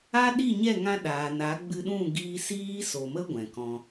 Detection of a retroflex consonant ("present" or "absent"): absent